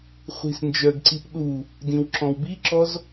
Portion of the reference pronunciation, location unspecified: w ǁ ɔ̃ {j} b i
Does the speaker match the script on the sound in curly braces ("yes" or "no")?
no